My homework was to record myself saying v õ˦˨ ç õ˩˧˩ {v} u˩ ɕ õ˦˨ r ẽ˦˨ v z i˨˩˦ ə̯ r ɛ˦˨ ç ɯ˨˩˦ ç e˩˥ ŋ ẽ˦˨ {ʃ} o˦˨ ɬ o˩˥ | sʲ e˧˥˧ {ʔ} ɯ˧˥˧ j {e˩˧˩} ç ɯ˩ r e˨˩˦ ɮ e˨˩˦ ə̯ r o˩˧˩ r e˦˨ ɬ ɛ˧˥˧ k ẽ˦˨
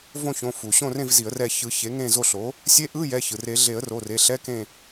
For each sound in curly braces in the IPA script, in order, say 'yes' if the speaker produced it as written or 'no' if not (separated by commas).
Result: no, no, yes, no